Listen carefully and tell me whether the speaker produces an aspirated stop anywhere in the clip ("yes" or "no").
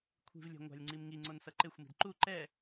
yes